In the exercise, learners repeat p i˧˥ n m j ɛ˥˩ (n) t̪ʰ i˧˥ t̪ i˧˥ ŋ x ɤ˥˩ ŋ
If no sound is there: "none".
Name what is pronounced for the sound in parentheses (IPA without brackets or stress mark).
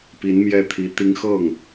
none